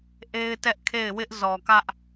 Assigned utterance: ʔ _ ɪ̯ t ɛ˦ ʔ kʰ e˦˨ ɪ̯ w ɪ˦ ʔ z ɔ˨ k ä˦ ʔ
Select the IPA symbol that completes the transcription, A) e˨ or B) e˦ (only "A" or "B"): B